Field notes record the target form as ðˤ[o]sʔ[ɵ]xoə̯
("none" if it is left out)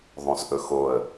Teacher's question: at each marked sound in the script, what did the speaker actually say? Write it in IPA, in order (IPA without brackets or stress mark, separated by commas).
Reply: õ, ɵ